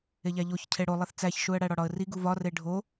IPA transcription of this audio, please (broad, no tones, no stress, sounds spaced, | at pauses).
e ʎ æ ʎ o ç cʰ e ɽ o lˠ e θ t͡s æ ç ʃ u ə̯ ɽ æ ɽ ɒ ɽ ɒ ə̯ r i ɡ u v ɒ r e ɖʱ o